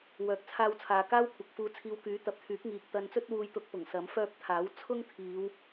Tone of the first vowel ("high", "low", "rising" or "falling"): low